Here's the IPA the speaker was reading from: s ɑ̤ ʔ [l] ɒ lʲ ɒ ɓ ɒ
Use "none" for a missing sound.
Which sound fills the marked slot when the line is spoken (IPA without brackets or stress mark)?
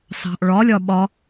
ɭ